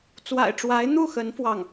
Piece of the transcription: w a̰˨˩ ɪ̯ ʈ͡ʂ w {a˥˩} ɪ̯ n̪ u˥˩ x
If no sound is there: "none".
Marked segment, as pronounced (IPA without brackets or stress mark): a˧˥